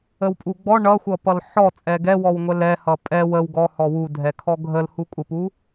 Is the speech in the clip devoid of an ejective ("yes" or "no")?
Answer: no